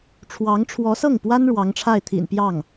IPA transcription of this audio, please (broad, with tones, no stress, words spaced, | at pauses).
ʈ͡ʂʰwɑ˧˥ŋʈ͡ʂʰwɔ˧˥sɤ˥˩ŋpwa˥n ɻwɑ˧˥ŋʈ͡ʂʰa˥˩ɪ̯t̪ʰḭ˨˩n pjɑ˥˩ŋ